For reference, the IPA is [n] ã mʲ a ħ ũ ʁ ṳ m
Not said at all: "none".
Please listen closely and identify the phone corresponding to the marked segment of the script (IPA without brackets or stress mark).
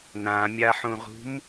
n